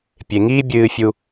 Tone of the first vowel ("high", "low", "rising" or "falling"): low